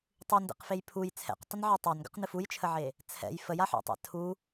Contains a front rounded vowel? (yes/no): no